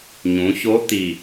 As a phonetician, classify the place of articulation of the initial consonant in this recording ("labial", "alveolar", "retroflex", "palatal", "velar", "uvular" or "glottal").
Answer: palatal